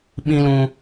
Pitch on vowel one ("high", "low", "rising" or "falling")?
high